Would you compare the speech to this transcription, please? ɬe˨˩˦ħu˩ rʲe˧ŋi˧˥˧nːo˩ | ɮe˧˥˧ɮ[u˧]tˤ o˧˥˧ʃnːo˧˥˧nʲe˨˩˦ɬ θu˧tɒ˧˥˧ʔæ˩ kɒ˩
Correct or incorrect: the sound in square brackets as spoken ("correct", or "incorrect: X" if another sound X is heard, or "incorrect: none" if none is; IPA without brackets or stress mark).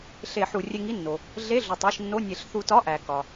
incorrect: u˩